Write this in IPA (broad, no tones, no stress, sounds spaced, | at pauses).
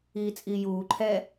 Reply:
iː t͡sʼ iː j uː ǃʰ ɛ